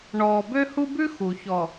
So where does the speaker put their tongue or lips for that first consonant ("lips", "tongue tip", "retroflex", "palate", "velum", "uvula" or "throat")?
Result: retroflex